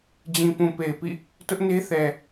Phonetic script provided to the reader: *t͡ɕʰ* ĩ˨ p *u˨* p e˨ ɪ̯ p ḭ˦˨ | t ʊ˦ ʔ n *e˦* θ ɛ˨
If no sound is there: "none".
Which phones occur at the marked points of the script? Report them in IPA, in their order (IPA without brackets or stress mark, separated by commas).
d͡ʑ, ũ˨, e˦